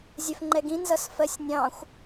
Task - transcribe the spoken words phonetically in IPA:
zʲɛfŋ͡ǃɛɡĩ nzʌsfɜsʲnʲɑ̃xʷ

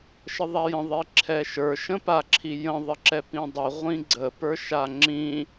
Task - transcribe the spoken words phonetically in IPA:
ʃəðˤajə̃ ðˤiǁʰɛʃə˞ ʃə̃paǁʰijə̃ ðˤəǁɛpĩdˤi ʁʷĩɡ͡ǀə pə˞ʃaŋ͡ǁĩ

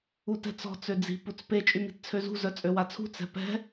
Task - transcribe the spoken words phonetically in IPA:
utɛ̤t͡sɔ̤ t͡sød͡zi̤ put͡spe t͡ʃʼymi̤tt͡sʰøzṳ zœt͡sʼøwat͡sʰṳ t͡sɛ̤pɛ̤

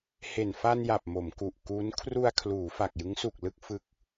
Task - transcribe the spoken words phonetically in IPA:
he˨˩nfa˧nja˨˩p̚ mo˩˦mku˨˩ʔkuː˦˥n kʰru˧a̯kʰluː˩˦ fa˨˩k̚jɯ˦˥ŋsu˨˩k̚ lɯ˥˩k̚fɯ˦˥k̚

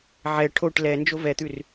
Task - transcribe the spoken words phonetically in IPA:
ʕɛ ʈʰoʈ lɛ nd͡ʒovɛt̪ʉr

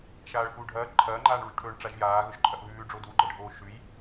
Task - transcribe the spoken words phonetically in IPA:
ʃaːɭθuːɖʱɐː ǃʰɐːŋ͡ǃaːɳɭuʒʈʰɵːɳ ʈ͡ʂaʒjaː ɣɵʒǃʼɐʔβʉːɖ͡ʐo duɡ͡ǃɐɖʱoː ʃʉj

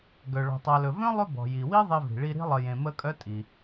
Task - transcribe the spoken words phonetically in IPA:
ɡœ˩ ɭɔ̤˩tˤa˨lɵ˩ vœ̃˥lˠɵ˦ bɔ̤˩ji˩wi˥ ðˤe˦vi̤˩ɭi˦ ɾi̤˥lˠə˨jẽ˨ mə˦ kʼœ˥tʼi˩

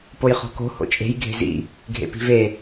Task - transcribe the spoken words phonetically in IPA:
pojχɔ̤ko̤ ho̰t͡ʃʼe̤j ɡʱe̤zḭ | ɡʱḛpi̤ve

